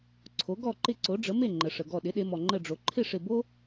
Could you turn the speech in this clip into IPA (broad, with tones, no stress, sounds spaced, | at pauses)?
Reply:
ǀʰ o˩˥ ɡ ɔ˥˩ ǃ ɪ˥˩ ǀ o˩˥ ɖ͡ʐ ə˩˥ m e˥˩ ŋ͡ǃ ə˩ ʂ ə˩ ɡ ɔ˧˩ ɗ ɪ˩˥ ɗ e˩˧ m ɔ˩ ŋ͡ǃ ə˧˩ ɖ͡ʐ o˩ ǃʰ ɪ˥˩ ʂ ɪ˧˩ b o˥